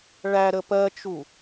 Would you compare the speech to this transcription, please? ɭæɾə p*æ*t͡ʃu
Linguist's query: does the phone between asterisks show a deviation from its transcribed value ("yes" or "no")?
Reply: yes